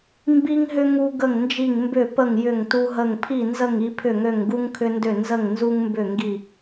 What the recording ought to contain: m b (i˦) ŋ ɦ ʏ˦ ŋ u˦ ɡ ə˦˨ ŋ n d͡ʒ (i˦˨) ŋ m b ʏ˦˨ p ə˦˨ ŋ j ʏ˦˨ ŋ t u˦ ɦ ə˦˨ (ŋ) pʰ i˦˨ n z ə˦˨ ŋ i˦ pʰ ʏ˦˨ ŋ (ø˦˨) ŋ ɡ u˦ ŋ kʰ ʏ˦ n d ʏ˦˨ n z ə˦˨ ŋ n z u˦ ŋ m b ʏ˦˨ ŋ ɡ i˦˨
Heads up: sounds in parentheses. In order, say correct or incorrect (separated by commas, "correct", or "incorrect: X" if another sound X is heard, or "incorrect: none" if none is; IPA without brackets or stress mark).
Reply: correct, correct, correct, correct